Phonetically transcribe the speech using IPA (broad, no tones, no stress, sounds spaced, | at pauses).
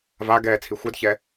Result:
v a ɡ ɛː t͡sʰ i xʷ ɜ d ç ɛ